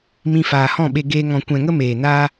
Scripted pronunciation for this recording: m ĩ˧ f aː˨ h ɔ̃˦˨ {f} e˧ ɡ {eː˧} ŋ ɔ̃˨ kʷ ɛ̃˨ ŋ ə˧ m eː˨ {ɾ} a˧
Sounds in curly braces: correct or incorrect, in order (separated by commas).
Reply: incorrect, correct, incorrect